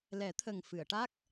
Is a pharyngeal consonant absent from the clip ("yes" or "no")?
yes